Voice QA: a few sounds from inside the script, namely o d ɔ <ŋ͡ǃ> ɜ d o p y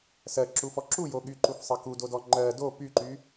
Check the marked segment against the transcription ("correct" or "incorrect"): correct